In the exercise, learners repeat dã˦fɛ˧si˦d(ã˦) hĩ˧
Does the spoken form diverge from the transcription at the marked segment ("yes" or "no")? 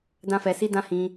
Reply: no